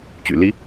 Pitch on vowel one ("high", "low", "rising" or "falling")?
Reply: low